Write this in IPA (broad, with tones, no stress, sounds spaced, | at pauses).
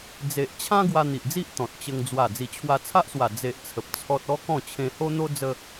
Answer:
d͡z e˨ ʔ t͡ɕʰ ã˦ ɡ w a˧ n̪ i˨ ʔ d͡z i˦ ʔ t̪ ɔ̃˨ t̚ t͡ɕ ə˧ ŋ d͡z w a˨˩ d͡z i˨˩ t͡ɕʰ w a˧ t͡sʰ a˦ ʔ s w a˨˩ d͡z e˨ ʔ t͡sʰ ə˨ p̚ t͡sʰ ɔ˦ t̚ ɔ˦ k ɔ̃˥˧ t͡ɕʰ ẽ˧ h o˦ n̪ o˦ d͡z ə˧